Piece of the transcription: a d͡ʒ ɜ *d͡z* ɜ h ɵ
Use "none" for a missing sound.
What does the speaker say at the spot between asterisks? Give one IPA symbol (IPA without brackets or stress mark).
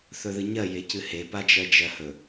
d͡ʒ